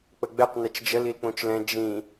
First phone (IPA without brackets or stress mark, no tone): k͡p